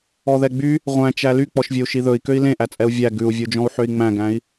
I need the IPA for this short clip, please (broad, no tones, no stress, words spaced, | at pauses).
ɔðɛɡ͡by | ʁʷæ̃t͡ʃæ lyk͡pɔʃvʲɵu̯ ʃiðɵi̯ køi̯lẽʔæt͡sʼɛu̯ vʲæ ɡʉu̯vʲud͡ʒɔ̃u̯ ħøi̯ŋ͡mæ̃ɡæ̃i̯